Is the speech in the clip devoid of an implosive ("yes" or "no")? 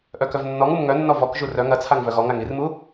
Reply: yes